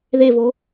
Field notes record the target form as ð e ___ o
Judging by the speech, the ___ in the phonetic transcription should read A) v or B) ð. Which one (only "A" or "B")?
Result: A